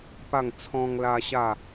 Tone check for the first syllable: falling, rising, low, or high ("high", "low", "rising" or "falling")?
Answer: falling